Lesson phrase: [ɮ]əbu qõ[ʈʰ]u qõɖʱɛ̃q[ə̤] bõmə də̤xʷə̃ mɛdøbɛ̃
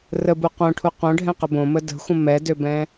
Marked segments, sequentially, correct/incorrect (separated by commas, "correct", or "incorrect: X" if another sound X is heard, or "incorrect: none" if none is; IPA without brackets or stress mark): incorrect: r, correct, incorrect: ə